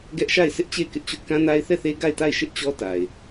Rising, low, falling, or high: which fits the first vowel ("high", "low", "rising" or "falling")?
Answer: high